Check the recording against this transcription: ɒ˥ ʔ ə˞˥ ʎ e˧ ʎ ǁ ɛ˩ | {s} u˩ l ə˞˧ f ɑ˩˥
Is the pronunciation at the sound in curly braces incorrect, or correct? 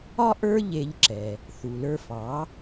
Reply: incorrect